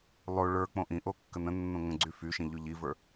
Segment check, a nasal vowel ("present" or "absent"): present